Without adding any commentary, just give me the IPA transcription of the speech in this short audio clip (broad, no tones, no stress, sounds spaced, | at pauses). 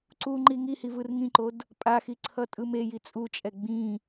ǀ u ŋ͡ǃ i ŋ i h i v ɯ r ŋ ĩ ǃ o d | pʼ a x i ǀʰ ʌ tʼ ɯ m e j i t͡sʼ u t͡ʃʼ ɛ ɡ͡b ĩ